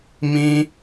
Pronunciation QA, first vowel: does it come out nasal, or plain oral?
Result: nasal